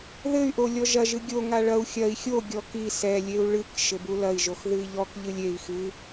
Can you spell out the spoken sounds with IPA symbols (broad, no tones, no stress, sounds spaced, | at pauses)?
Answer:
ð ɘ y̯ ʔ o lʲ ɔ ʒ ɐ ʒ ɨ ɡʲ o ŋ a ɭ ɐ u̯ xʲ ɐ i̯ xʲ o ɡʲ ɔ k i s ɛ lʲ e u̯ ɭ ɨ k ʃ ɘ b u l ɐ i̯ ʒ o x ð ɨ i̯ ʎ ɔ k ʎ ɨ lʲ e i̯ x ɨ